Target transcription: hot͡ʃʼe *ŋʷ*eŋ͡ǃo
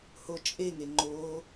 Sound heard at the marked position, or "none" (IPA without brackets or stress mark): ŋ